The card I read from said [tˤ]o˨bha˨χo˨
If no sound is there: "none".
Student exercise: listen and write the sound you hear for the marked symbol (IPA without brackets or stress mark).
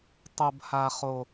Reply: tˤ